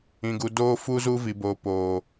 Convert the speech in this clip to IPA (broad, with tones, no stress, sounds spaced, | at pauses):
ĩ˨ ɡ u˨ d oː˦ f u˦ z u˦ v i˨ b o˨ p oː˨